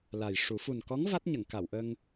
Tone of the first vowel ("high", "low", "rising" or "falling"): low